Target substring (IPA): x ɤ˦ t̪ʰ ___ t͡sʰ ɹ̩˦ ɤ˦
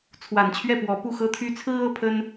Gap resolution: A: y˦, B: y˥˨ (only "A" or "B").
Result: A